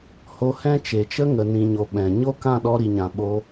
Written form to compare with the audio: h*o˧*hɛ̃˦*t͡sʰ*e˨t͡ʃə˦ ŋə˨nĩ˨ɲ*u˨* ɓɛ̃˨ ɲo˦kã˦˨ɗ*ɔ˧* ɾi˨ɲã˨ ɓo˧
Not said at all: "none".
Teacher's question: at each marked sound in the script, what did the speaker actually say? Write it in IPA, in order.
o˧, t͡ʃ, o˨, ɔ˧

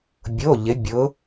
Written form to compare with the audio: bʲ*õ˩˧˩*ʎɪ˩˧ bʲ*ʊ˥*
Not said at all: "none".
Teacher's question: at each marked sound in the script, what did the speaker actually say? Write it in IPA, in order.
o˩˧˩, ʊ˩˧

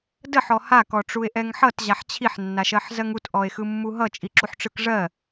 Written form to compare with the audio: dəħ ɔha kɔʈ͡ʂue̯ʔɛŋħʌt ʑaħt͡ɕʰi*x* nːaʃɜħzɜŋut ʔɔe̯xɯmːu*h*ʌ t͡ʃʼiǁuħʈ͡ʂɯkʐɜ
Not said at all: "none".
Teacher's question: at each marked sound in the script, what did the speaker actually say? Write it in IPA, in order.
ħ, ɦ

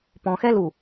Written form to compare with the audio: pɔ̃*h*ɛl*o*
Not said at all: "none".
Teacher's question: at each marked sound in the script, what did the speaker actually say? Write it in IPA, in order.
x, u

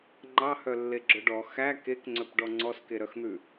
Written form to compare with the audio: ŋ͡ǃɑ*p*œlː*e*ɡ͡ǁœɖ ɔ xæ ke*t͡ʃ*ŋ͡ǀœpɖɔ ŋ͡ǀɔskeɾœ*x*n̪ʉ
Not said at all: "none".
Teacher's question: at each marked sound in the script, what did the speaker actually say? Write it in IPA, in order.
h, e, k, x

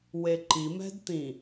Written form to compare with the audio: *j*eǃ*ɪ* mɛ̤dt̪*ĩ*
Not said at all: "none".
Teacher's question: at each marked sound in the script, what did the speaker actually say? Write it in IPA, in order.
w, i, ĩ

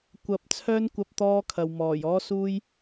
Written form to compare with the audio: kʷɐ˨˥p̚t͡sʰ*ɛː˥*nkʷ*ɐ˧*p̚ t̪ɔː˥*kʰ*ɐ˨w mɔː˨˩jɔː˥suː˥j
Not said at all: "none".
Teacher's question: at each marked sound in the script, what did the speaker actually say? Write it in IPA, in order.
œː˥, ɐ˧, kʰ

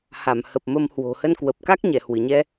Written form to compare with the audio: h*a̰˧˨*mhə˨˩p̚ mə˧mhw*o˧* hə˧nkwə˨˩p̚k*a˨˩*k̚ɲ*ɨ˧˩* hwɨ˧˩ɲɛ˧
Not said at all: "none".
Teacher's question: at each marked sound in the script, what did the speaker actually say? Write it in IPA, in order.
a˧˩, o̤˨˩, a˦˥, ɛ˧˩

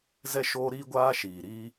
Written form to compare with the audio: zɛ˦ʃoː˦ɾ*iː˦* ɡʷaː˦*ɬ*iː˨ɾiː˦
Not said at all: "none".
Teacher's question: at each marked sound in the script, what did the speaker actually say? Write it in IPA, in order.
iː˦, ʃ

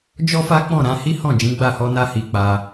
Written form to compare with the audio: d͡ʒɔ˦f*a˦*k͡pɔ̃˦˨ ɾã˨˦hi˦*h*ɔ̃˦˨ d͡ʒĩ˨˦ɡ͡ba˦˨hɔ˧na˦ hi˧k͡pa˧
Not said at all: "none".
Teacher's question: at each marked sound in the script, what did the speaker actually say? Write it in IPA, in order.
a˦, h

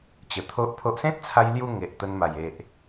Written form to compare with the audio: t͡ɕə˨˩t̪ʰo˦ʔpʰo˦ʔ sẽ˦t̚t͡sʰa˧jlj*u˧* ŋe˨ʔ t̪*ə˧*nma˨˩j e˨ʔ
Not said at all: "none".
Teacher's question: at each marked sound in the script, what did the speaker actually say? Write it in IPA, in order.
u˧, ə˧

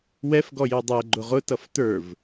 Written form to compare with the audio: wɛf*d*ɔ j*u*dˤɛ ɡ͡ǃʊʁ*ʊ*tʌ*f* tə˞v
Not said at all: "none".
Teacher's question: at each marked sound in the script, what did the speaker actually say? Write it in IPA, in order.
ɡ, u, ʊ, f

